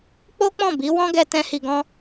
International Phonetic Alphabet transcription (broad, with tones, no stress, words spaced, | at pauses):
k͡po˦k͡pɔ̃˦˨bi˨˦ wɔ̃˦ɡɛ˧ tɛ̃˦hi˧ɡɔ̃˦